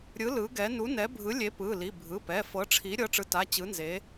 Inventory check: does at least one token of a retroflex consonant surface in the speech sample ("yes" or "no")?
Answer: yes